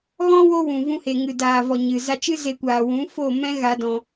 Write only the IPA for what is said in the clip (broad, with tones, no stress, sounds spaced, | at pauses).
ɣ ɔ̃˦ w o˦ w ũ˨ v ũ˧ h e˨ ŋ ɨ˨ d aː˨ v ɔ˨ ɲ ɨ˨ z a˧ t͡ʃ ɨ˦ z e˧ kʷ aː˨ w ũ˨˦ f o˦˨ m ɛ̃˦ ɣ a˧ d ɔ̃˧